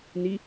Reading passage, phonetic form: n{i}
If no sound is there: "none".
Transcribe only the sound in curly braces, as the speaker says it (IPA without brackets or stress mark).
i